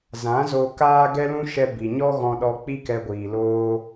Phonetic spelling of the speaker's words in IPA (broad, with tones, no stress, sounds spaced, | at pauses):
z ã˨˦ z o˧ k aː˦ ɡ ɛ˦ l ũ˦ ʃ ɛ˧ b i˨ ɲ ɔ˦ ɣ ɔ̃˧ ɗ ɔ˧ k͡p i˦ k ɛ˧ ɡʷ iː˨ l oː˦